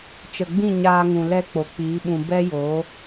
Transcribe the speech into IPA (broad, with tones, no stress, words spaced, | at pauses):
t͡ʃə˨ɡ͡bĩ˦˨ ɲaː˧ŋũ˨ lɛ˧ k͡po˨k͡piː˨˦ɓũ˧ bɛ˦joː˨˦